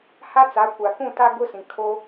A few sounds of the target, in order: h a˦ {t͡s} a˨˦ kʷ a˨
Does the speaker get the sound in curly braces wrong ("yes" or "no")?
no